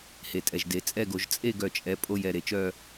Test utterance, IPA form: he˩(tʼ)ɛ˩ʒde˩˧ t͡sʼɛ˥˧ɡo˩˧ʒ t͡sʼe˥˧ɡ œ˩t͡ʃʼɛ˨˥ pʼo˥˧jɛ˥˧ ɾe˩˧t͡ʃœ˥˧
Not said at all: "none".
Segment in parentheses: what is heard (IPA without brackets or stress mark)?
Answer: tʼ